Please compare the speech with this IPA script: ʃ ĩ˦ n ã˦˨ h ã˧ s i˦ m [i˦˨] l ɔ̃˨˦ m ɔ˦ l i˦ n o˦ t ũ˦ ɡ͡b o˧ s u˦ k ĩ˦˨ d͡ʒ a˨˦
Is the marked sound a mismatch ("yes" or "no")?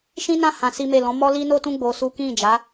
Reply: yes